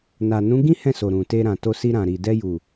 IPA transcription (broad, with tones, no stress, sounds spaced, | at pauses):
n a˨ n ũ˨˦ ɡ ĩ˦ h ɛ̃˦˨ s o˨ ɾ ũ˨ t e˧ ɾ ã˨ t o˧ s i˧ ɾ ã˨ ɾ i˨ d ɛ˧ j u˨